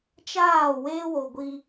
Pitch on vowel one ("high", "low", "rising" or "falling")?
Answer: falling